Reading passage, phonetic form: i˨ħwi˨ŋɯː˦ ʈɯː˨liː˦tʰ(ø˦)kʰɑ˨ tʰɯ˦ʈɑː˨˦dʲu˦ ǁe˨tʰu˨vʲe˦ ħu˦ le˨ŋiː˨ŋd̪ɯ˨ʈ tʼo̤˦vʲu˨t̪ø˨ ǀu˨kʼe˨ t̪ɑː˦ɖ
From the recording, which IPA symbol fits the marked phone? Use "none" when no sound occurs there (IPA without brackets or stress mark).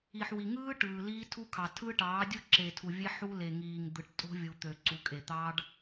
u˦